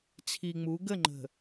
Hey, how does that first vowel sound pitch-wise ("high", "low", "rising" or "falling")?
low